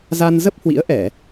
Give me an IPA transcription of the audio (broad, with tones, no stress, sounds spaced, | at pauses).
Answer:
z a˧ n z ə˦˥ p̚ h w ḭ˧˥ ə̯ ʔ ɛ˧˩˨